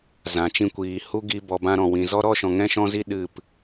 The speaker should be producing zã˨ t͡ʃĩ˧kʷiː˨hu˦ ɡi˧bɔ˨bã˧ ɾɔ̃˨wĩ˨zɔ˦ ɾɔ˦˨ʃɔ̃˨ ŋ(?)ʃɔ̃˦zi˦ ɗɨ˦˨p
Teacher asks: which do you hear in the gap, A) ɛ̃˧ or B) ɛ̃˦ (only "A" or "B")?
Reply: B